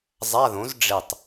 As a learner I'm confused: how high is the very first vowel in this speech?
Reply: low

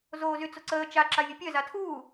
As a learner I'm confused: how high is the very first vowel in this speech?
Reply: mid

